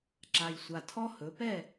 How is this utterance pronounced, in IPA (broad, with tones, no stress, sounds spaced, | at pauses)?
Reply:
ǁ a˨˩ j sʷ a˨˩ tʰ ɔ˦˥ h ɵ˩˧ p ɛ˦˨